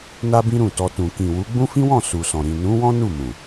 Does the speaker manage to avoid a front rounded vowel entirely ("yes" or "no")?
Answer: yes